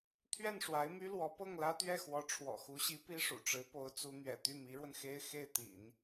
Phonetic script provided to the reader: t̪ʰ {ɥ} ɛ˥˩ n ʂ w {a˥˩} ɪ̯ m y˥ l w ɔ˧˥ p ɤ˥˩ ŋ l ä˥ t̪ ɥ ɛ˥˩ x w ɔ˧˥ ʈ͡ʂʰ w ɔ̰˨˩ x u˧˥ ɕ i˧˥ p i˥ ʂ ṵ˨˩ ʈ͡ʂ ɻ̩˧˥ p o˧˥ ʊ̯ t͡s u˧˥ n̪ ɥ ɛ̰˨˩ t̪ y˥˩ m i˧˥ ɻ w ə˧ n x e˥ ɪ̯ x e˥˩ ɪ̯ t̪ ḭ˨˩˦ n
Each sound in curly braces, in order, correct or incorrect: correct, incorrect: a˧˥

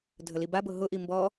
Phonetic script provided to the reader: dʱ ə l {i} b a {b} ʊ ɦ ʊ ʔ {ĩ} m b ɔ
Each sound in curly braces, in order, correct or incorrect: correct, correct, incorrect: i

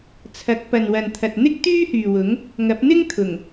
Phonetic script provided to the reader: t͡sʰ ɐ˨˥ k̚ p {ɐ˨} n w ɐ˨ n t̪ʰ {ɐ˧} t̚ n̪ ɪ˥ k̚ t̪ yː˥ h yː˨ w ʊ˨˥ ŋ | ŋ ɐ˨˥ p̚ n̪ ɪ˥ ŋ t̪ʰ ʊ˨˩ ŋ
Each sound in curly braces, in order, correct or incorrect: correct, incorrect: ɐ˨

